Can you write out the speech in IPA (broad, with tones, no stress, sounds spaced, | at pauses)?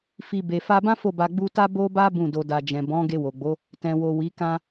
f i˨ b e˨ f a˧ b ã˦ f o˦˨ b a˧ ɡ͡b u˧ t a˦ b o˦ b a˦ b ũ˦˨ d o˧ d a˧ d͡ʒ ɛ̃˨ b ɔ̃˨˦ ɡ e˧ w o˨ ɡ͡b o˨˦ | t ɛ̃˨ w o˨ w i˨˦ k ã˧